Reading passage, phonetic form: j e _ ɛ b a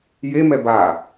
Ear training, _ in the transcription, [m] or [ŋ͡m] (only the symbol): m